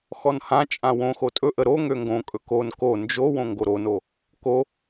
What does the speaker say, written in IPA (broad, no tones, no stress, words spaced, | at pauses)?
xɔnhãt͡ʃʼã wõxo tʼɵʔə ɾoŋø ŋɡõkʼɵ kon ko nd͡ʒowõ ŋɡoɾono | ko